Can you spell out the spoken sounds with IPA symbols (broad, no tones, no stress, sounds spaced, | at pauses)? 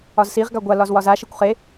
ɒ z s i ʁ ɡ a ɡʷ a l ɒ z w ɒ z a ʃ e kʷ χ e